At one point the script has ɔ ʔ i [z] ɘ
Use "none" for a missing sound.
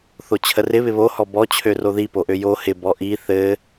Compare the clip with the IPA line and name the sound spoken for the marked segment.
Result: θ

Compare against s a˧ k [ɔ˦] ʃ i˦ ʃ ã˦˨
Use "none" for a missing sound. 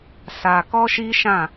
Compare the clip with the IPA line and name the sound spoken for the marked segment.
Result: ɔ˦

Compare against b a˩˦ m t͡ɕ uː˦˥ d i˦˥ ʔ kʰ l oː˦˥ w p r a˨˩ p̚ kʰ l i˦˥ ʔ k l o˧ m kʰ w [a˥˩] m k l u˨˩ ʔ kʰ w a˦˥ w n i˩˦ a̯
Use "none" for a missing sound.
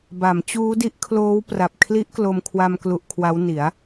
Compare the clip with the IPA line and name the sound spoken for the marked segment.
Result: a˧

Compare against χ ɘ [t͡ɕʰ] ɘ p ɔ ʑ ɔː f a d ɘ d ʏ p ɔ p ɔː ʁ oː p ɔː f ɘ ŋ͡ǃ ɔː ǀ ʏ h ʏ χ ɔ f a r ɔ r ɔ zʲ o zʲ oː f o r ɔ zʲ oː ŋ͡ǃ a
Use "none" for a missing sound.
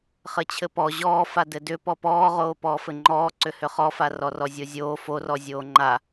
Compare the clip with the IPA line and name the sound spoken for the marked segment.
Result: t͡ɕʰ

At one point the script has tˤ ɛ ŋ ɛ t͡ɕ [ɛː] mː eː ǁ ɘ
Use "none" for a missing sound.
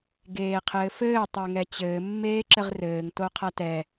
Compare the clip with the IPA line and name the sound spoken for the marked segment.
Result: ɘː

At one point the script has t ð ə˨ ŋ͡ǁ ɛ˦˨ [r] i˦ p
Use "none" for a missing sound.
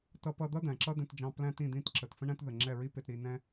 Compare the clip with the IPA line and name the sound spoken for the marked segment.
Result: ɹ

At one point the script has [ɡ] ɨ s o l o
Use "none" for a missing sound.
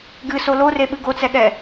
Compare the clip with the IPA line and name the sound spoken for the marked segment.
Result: ɡ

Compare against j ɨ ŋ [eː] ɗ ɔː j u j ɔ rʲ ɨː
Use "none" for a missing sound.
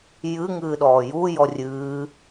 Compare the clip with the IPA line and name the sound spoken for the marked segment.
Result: ɨː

